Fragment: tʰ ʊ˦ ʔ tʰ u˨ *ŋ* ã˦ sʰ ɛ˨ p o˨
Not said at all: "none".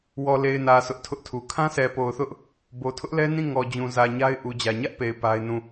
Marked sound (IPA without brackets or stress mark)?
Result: kʰ